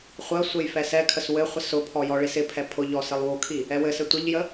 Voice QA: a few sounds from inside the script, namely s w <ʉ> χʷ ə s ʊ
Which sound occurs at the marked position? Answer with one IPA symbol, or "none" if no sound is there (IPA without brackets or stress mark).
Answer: ɘ